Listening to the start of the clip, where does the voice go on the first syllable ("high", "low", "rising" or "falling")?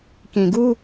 low